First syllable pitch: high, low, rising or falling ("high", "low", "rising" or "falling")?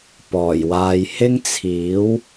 low